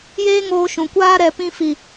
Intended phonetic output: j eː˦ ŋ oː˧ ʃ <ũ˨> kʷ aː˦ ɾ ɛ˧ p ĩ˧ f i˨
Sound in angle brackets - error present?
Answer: no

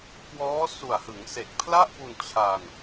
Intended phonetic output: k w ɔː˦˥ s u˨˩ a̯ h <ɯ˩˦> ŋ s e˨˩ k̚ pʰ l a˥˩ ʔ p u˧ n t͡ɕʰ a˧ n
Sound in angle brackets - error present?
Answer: no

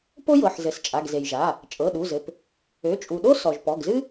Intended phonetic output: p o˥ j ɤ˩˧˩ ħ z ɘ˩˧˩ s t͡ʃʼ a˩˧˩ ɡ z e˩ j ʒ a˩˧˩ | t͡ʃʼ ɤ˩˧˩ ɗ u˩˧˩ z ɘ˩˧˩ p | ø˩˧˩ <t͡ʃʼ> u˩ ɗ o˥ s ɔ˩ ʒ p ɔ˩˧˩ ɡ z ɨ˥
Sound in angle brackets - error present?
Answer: no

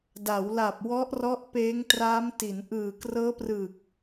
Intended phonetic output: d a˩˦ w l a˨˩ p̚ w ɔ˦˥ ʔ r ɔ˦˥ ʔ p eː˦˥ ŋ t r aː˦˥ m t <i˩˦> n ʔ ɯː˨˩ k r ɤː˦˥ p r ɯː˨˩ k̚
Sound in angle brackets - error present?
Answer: no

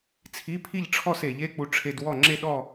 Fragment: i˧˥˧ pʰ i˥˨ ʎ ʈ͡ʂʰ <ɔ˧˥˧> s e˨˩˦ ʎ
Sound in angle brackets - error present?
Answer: yes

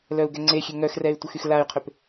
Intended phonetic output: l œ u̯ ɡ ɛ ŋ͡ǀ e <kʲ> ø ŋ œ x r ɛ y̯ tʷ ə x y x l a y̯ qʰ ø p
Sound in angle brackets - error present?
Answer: yes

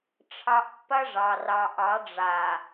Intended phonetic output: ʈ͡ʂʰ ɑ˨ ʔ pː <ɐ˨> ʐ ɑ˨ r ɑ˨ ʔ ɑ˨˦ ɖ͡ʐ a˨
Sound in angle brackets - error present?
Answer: yes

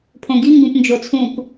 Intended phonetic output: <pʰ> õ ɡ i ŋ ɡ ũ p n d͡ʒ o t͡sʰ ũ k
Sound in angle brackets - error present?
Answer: no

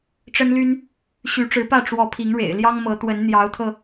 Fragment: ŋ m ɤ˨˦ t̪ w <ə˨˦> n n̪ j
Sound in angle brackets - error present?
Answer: no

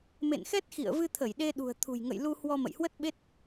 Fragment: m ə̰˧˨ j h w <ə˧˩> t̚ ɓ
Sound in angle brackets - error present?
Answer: yes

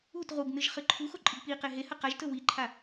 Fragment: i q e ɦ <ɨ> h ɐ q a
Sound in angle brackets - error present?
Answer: yes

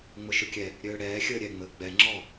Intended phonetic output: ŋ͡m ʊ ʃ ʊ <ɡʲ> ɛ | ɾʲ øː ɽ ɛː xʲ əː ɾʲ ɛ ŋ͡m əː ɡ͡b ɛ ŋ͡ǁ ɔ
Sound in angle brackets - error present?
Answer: yes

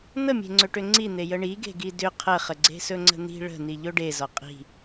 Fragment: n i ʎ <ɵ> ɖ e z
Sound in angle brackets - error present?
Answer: no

